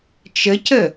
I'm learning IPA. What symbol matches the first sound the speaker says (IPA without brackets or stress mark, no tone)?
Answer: t͡ʃ